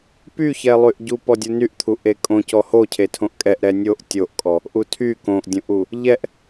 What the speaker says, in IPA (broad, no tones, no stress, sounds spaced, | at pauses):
p y ç ɛ lˠ y ʔ ɟ u p ɔ dʲ u n y ʔ t̪ʰ u ʔ e kʼ õ c ɔ h o cʰ e tʰ õ ʔ kʼ ɛ ʔ ɾ ɛ nʲ o ʔ tʲ o ʔ kʼ ɔ | ʔ u tʰ y k õ ʔ dʲ õ ʔ u | ʎ ɛ ʔ